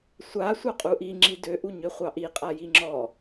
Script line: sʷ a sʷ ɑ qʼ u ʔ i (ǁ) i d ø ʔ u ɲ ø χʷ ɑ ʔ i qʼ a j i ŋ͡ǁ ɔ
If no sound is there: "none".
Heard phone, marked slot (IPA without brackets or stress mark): ŋ͡ǁ